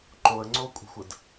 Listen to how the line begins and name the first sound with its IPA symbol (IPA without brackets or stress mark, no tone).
ǃ